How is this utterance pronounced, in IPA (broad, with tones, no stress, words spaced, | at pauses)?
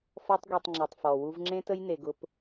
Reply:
fɔ˦tˤɡʷe˧tˤŋ͡ǁi˨tˤfɔ˨ wu˧vŋ͡ǁẽ˦tə˦j ne˧ɡʊ˦p